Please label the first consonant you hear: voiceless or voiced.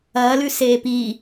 voiced